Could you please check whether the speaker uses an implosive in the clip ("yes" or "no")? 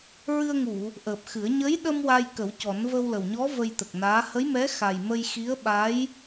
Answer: yes